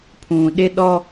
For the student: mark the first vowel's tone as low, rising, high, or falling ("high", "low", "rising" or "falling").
low